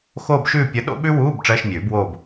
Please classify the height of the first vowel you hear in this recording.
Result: mid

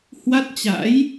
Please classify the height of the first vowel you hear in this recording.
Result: low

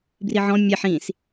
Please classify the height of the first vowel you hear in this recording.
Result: high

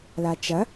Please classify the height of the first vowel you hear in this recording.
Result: low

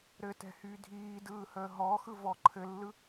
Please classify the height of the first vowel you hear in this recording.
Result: mid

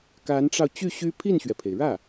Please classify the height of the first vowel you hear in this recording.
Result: low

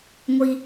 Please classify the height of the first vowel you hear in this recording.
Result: high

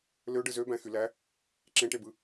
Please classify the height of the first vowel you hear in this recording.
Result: mid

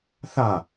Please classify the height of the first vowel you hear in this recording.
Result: low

